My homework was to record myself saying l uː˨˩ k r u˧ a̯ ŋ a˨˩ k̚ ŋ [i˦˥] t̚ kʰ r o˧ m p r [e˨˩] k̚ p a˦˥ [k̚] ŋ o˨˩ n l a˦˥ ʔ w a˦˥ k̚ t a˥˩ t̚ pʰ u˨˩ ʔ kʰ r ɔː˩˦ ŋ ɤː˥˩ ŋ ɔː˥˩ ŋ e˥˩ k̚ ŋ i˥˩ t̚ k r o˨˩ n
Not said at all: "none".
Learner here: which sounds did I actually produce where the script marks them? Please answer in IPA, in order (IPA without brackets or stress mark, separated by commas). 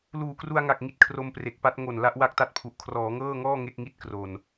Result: i˦˥, e˨˩, t̚